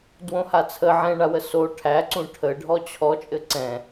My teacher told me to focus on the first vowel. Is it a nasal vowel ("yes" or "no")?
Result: yes